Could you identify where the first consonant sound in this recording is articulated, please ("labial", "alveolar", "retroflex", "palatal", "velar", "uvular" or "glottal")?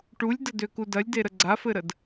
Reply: retroflex